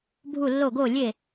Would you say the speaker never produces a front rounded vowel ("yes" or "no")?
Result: yes